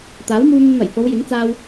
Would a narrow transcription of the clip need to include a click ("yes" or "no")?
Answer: no